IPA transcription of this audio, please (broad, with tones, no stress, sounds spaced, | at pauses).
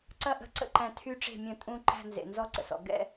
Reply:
ǀ ɐ˥˩ ʔ ə̤˥˩ ǀ ə̰˥˧ ǃ æ̃˨ tʰ y˥˧ ʈ͡ʂ e̤˥˩ mʲ ɐ̃˥˩ tʼ ũ˥˧ ǃ æ̤˥˧ n z ḛ˨ n z ɔ˥˧ ǀ ə̰˨ s ɔ̰˨ ɡ ɛ̰˥˧